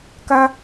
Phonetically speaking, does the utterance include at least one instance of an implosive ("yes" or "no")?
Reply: no